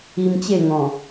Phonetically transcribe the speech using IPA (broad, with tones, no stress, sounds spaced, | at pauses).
i˧ m t͡ɕ e˥˧ ŋ ɔ̃˨˩